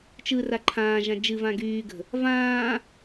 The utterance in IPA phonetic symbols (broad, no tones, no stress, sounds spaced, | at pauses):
t͡ʃ ɯ r a ǃʰ ãː ʒ ã d͡ʒ ɨ v ã ɡ yː ɡ ə̤ | v ãː